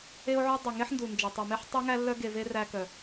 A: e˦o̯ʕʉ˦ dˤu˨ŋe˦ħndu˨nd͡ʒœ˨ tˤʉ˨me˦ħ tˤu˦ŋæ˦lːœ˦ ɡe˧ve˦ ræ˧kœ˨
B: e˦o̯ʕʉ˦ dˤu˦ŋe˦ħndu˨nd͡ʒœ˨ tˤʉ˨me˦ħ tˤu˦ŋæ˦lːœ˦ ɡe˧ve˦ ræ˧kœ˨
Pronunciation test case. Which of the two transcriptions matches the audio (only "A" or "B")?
A